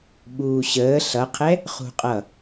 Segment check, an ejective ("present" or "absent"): present